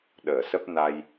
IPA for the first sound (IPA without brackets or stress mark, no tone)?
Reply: ɗ